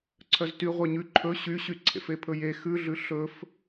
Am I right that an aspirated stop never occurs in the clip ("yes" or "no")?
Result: no